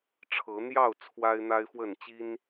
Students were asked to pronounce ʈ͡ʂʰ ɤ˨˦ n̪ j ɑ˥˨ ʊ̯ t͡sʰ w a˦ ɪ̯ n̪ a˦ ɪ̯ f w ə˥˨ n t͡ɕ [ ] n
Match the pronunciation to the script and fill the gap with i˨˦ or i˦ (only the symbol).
i˦